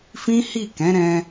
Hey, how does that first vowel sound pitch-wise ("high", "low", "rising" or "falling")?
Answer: high